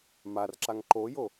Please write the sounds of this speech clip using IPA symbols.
m a r ǁ a ŋ ǃ o j o

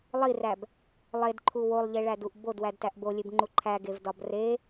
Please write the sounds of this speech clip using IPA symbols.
lˠ i r æ b | lˠ e d ǃʰ u w o lˠ ʎ e ɭ æ d u ʔ b o d w æ d t æ ʔ b o lʲ e b ŋ͡ǃ u ǃʰ æ ɡ e v d ɒ b r e

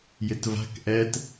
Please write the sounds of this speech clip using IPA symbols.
j ɪ t v a̤ k ʔ ɛ t

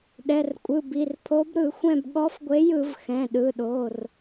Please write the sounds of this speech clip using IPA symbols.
ɗ ɛ˩˧˩ r kʷʼ ɯ˩˧˩ b i˩˧˩ r pʰ o˨˥ b ɾ ɯ˧˩˧ xʷ ɛ̃˦˨ b ɠ ɔ˨˥ f ɡʷ e˨˥ j ɯ˧˩˧ v x ɛ̃˩˧˩ ɗ ɯ˩˧˩ ɗ o˩˧˩ r

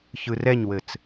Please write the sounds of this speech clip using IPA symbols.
ç ɯ r ɛ ɲ w ɘ t͡s

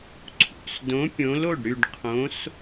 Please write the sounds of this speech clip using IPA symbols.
ǀʰ ṵ˩˧˩ s d õ˨˥ pʲ õ˨˥ l o˩˧˩ ɖ ɾ y˦˨ ɖ qʰ õ˨˥ s

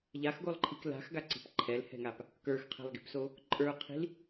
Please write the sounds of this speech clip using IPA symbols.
ʎ a x ɡ o lˠ ǃʰ i k l a̤ x ɡ a ǀ i̤ p ǃʰ ɛ l h ɛ̤ ŋ a p | k ə˞ x qʰ ɛ̤ lˠ ɡ i̤ p s o | ǃʼ ə˞ qʰ i̤ l

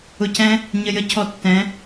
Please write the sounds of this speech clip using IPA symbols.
ʊ˧ c ɛ̃˦ | ɲ ə˧ j ə˦ cʰ ɔ˧ tː ɛ̃˨˦

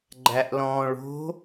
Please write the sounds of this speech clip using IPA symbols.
ɡ͡ǃ æ ʔ l ɔ̃ː ɭ o̤

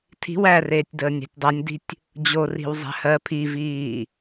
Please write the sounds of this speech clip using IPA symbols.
tʰ i̤ w æ r eː tʲ d əː nʲ æ̤ tʲ dˤ a nʲ d i̤ tʲ | d͡ʑ o r i̤ w zˤ æ̤ h ɜ pʰ i v iː

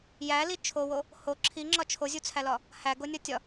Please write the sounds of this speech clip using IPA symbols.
j æ l i t͡ʃʰ o w o | h o ǁʰ i ŋ͡ǁ ɒ t͡ʃʰ o zʲ u t͡sʰ æ l ɒ | h æ ɡ o nʲ ɒ tʲ ɒ

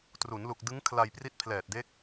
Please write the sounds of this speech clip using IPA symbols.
t r u˩˦ n l u˨˩ k̚ d ɯ˦˥ ŋ kʰ l a˧ j p r i˦˥ t̚ pʰ l ɛː˨˩ t̚ d e˦˥ k̚

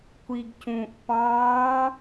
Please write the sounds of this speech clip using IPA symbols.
kʷ i ɡ c ũ ʔ p ɑ̃

